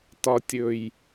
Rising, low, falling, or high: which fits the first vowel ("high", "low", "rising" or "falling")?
low